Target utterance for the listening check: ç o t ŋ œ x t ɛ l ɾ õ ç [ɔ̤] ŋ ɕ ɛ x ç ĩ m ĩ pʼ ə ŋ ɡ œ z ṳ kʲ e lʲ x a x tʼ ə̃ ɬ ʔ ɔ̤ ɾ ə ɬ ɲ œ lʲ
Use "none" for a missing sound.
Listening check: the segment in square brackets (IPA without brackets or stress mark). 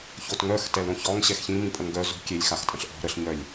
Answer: ɔ